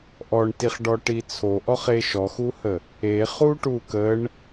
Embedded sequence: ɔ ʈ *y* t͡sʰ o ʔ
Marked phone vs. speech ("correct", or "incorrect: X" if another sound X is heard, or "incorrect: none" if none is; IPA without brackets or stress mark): incorrect: i